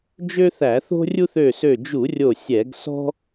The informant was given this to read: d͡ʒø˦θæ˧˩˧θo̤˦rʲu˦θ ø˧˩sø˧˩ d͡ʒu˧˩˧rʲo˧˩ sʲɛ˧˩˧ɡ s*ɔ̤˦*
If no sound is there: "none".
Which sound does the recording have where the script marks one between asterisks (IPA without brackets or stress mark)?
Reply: ɔ̤˦